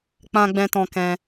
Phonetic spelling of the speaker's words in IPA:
k͡p ã˧ ɡ͡b ɛ̃˧ t ɔ̃˧ k ɛ̃˧

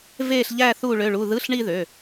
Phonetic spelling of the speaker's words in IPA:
v e˥˧ ɬ ʎ æ˥˧ θ u˥˧ ɭ ø˧˥˧ ɭ u˧˥˧ ð ɯ˧˥˧ ɬ ɳ i˥˧ ð ø˧˥˧

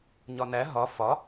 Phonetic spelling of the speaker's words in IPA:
ɲ ɒ n æ ɦ ɒ f ɒ

